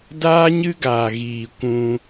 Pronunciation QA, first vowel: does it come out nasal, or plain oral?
oral